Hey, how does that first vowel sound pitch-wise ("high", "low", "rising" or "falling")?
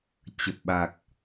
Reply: low